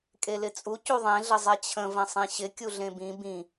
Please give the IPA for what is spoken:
kʼelɪt͡sʼu cuðˤẽɮə zˤɛt͡ɕʰə̃ və̃sˤĩɕɪ kʲuɮẽbĩ bĩ

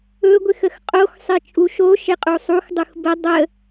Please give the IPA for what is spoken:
ɵɡʷɪxəx qʼoxsˤɪ t͡ʃʼuʃo ʃɪqʼusˤux dˤuxbə dˤə

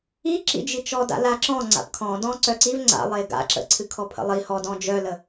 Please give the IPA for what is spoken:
iǁḭd͡ʒit͡ʃɔ da̰laǁɔ̃ ŋ͡ǀa̰pkʰɔ̃ dɔ̃ǀœǀiv ŋ͡ǀa̰lˠe ɡa̰ǁə̰ ǀʰɨkʰɔpʰə̰lˠi hɔ dɔ̃d͡ʒœlə

